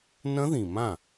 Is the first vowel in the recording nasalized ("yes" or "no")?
yes